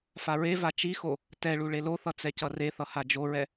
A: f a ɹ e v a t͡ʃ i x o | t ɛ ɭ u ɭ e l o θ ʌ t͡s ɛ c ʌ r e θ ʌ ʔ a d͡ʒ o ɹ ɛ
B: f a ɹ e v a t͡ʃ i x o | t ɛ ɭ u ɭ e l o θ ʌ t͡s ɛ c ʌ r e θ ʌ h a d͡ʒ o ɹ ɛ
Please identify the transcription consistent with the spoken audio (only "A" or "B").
B